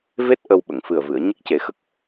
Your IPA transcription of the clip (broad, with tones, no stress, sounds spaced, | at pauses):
v e˦˥ t̚ ʔ ə˧ w ɓ ə˨˩˨ ŋ f ɨ˨˩ ə̯ v ɨ˨˩˨ ə̯ ɲ ə˦˥ k̚ c e˨˩˦ x ə˦˥ k̚